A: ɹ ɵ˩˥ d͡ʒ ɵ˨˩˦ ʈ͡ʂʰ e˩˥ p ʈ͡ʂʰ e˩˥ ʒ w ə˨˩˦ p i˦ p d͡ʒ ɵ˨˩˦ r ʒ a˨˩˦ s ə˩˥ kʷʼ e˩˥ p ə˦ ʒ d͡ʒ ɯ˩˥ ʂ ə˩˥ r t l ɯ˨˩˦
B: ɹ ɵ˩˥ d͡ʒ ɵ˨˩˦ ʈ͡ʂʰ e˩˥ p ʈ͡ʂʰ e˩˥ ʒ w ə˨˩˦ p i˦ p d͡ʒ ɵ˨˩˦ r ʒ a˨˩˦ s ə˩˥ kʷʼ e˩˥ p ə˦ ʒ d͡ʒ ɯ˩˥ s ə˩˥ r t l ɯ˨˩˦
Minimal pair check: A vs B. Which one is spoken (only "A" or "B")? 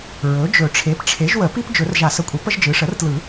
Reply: A